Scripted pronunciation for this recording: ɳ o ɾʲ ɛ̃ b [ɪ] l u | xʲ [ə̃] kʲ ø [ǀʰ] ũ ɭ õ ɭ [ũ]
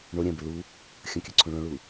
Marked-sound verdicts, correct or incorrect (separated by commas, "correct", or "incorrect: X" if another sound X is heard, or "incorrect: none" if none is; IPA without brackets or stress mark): correct, correct, correct, incorrect: u